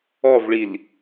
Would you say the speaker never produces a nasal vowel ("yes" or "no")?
yes